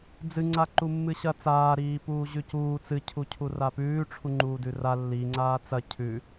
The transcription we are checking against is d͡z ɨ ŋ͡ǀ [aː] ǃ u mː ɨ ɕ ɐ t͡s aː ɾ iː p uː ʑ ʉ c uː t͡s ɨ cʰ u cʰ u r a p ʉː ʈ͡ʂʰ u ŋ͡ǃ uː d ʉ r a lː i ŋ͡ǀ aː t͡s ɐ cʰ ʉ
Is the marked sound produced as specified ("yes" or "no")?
no